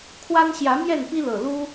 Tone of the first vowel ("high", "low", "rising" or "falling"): high